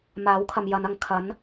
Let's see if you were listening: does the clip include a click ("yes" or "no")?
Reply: no